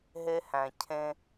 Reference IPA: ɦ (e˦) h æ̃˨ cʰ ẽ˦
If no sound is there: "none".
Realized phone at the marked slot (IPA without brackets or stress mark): e˦